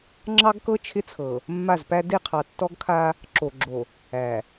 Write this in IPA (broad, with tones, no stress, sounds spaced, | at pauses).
ŋ͡ǁ ɑ˦ ɡ k ɤ˦ t͡ʃʰ ɪ˦ t͡sʰ ɤ˨ | mː a˦˨ z p æ˦ d e˦˨ qʰ ɑ˨ tː ɔ˦ ɡ kʰ a˦ | ǁ o˨ ɡ͡ǁ o˨ | æ˨